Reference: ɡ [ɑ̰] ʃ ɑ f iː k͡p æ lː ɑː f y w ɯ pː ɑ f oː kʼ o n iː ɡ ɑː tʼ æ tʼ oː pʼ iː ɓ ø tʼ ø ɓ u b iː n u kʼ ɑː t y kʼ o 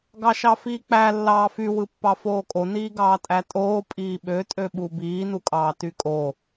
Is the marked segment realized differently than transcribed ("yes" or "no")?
yes